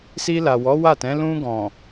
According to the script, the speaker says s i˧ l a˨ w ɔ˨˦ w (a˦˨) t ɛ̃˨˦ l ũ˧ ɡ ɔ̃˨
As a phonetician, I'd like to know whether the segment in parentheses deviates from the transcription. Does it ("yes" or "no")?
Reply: no